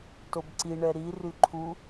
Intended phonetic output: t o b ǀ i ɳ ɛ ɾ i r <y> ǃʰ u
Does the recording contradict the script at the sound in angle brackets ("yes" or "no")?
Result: no